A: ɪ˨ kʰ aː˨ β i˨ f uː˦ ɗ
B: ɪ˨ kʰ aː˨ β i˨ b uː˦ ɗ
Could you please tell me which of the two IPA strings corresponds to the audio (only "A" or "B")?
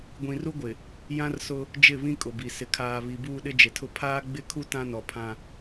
B